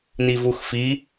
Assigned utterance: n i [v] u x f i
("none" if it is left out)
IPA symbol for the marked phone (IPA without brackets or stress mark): v